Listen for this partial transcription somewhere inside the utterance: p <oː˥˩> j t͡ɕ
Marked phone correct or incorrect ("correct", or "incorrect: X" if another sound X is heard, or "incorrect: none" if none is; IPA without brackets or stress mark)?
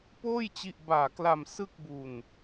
correct